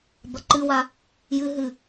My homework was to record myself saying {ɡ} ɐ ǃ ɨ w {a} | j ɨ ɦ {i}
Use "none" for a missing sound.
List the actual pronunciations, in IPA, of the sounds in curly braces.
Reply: b, a, ɨ

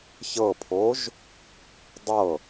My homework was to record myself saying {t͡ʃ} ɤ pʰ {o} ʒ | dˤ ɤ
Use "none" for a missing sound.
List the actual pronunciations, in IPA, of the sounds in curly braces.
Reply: ç, o

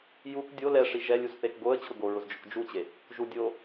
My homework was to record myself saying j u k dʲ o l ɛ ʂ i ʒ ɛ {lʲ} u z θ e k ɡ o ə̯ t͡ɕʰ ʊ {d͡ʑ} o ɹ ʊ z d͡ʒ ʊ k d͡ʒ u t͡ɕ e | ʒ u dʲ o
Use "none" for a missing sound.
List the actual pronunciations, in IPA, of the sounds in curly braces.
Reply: lʲ, ɡ

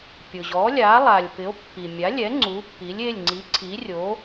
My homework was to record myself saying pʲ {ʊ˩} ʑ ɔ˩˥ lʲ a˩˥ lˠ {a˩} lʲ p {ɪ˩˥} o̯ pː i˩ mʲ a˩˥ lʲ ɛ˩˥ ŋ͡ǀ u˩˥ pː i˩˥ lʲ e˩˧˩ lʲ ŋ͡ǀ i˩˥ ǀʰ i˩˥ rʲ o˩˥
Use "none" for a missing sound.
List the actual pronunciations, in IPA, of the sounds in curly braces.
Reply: ʊ˩, a˩, ɪ˩˥

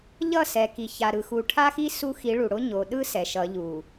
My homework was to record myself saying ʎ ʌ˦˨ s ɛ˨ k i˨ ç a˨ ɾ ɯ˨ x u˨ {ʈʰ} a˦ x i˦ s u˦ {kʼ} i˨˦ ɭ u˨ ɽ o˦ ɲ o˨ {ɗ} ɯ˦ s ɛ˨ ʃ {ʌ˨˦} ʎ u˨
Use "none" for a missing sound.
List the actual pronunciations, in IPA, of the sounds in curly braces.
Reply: ʈʰ, x, ɗ, ʌ˨˦

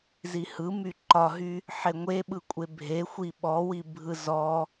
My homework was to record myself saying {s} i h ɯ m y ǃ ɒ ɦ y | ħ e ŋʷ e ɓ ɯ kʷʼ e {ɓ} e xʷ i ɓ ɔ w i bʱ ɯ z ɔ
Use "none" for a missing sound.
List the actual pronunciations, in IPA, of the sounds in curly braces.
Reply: z, bʱ

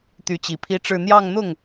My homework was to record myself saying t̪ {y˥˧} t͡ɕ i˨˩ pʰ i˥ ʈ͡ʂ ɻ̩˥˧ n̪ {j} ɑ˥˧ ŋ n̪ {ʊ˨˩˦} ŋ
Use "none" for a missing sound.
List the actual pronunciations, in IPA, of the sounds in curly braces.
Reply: y˧˥, j, ʊ˥˩

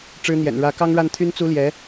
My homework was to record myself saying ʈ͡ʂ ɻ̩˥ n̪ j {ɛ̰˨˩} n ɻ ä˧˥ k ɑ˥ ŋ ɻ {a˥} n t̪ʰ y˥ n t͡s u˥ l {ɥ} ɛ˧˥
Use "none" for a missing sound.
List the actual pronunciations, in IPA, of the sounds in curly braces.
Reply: ɛ̰˨˩, a˥˩, j

